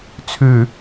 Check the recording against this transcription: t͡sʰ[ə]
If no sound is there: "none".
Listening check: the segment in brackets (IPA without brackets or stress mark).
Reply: ʉ